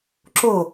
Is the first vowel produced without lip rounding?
no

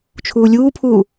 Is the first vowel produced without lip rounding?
no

